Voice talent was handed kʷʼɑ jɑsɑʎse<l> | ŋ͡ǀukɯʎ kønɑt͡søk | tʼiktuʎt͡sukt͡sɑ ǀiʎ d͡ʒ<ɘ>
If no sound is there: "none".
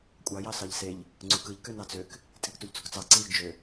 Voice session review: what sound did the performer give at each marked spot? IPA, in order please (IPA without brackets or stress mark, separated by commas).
ʎ, ø